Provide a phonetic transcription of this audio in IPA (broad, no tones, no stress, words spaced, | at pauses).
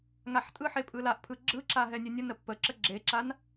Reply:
ŋaħtʼɯħe pʼɯlaʔpʰɯ ɡ͡ǁɯǁa ɦɛnʲənʲənə pːəǁə ɡ͡ǁeǁan